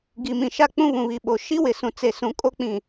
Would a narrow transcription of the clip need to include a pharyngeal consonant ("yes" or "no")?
no